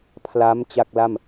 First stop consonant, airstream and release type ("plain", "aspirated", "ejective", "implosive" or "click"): aspirated